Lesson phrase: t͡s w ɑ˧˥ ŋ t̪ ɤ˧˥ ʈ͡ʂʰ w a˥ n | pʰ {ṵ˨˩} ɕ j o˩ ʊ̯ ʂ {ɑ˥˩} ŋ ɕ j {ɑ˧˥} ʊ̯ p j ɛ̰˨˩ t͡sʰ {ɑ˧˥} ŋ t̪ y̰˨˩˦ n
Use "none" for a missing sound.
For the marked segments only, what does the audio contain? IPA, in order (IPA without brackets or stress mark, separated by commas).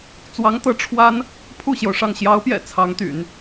u˥˩, ɑ˥˩, ɑ˧˥, ɑ˧˥